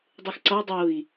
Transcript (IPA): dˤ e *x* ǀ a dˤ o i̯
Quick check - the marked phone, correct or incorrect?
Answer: correct